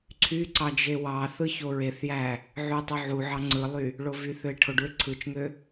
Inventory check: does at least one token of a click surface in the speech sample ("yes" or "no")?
yes